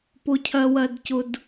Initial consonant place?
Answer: labial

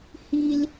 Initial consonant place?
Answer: glottal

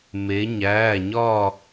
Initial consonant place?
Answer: labial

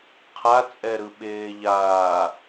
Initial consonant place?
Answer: uvular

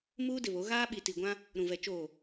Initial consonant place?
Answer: labial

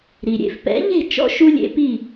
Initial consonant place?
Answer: alveolar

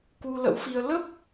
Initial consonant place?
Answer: velar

